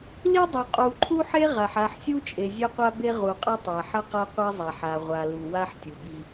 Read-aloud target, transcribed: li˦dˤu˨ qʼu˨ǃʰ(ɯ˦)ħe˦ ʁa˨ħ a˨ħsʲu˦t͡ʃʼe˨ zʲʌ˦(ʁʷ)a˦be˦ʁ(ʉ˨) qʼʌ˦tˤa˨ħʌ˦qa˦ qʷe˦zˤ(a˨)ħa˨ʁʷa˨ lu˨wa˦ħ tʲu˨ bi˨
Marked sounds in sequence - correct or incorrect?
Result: incorrect, incorrect, incorrect, correct

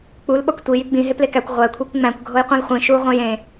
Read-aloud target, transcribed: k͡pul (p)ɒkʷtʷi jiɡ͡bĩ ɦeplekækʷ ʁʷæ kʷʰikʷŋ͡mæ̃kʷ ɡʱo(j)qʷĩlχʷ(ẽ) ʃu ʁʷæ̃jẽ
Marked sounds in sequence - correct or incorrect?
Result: incorrect, correct, incorrect

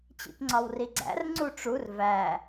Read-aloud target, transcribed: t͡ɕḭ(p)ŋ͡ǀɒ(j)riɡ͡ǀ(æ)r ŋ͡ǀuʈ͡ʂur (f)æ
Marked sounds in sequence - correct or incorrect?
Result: correct, incorrect, incorrect, incorrect

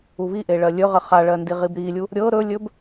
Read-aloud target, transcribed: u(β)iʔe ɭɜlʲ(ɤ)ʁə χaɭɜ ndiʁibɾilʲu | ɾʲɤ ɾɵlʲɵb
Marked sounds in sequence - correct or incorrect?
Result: correct, incorrect

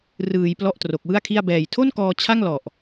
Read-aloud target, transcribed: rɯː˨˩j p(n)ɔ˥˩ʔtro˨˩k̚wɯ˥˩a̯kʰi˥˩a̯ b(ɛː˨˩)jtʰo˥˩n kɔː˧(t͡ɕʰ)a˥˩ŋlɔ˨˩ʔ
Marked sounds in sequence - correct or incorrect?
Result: incorrect, correct, correct

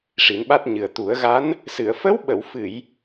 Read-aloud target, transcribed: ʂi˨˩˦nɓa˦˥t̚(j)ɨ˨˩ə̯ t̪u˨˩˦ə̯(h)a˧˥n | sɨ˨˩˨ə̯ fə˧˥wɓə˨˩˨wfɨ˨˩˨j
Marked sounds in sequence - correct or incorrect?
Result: incorrect, incorrect

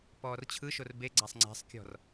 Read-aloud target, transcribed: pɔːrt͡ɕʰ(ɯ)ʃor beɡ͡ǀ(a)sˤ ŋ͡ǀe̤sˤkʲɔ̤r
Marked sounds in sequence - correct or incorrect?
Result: correct, correct

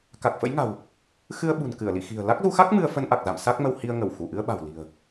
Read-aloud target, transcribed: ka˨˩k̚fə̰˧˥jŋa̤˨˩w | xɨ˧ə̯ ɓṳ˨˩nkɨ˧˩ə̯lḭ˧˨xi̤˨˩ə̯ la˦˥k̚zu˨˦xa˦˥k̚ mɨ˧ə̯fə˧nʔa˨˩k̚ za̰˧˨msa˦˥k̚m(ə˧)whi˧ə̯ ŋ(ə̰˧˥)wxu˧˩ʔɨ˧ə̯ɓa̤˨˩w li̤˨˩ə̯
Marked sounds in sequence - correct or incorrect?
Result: correct, incorrect

